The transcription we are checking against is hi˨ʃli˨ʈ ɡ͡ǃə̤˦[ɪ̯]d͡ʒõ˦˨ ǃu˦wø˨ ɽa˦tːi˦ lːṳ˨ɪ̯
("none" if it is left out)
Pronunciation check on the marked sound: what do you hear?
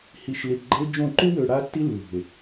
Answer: ɪ̯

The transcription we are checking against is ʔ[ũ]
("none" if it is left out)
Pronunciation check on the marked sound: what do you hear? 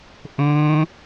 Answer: õ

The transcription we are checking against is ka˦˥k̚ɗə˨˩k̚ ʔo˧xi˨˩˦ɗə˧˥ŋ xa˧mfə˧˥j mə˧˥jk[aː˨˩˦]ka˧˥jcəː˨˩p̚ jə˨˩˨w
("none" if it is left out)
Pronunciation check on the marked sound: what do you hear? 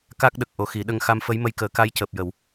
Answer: əː˨˩˦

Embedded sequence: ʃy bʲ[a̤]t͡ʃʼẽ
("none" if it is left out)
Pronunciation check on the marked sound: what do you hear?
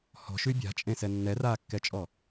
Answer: a̤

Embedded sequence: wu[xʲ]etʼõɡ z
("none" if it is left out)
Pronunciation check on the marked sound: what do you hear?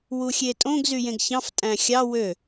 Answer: xʲ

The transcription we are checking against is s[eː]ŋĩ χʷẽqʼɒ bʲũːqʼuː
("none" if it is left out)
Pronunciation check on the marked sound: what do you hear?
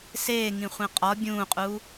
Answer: eː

